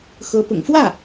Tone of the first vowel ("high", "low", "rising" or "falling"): rising